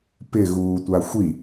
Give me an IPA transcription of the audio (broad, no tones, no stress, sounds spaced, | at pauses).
p ɪ ɣ uː tʷ a xʷ i